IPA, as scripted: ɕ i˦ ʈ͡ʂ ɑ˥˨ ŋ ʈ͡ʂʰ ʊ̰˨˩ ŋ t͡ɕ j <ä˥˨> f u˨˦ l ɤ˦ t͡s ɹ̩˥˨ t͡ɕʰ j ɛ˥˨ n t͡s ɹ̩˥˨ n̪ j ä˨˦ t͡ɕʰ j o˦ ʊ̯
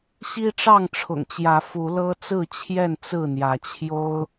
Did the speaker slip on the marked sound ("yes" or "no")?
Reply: yes